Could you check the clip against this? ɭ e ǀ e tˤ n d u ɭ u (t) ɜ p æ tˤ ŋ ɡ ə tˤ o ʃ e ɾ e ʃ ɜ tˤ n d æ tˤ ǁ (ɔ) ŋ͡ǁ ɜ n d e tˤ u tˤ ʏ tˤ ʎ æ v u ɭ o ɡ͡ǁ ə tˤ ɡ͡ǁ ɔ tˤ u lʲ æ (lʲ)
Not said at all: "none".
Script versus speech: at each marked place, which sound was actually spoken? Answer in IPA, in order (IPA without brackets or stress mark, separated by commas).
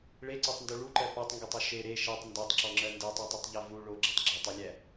ǃ, ɔ, none